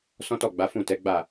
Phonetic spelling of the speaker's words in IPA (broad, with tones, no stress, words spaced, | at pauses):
sɔ̃˦tɔ˦˨ ɡ͡ba˨˦fũ˦˨tɛ˨˦ɡ͡ba˦˨